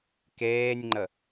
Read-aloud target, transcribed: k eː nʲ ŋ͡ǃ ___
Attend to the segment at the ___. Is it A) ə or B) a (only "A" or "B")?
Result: A